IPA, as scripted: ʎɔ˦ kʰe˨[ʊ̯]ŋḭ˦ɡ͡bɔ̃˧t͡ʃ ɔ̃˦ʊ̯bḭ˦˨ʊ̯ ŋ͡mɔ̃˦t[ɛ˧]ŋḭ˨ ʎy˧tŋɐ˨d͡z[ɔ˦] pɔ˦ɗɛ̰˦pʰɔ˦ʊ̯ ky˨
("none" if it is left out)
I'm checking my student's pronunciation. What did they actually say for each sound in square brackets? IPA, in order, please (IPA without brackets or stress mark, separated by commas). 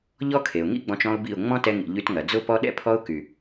ʊ̯, ɛ˧, ʊ˦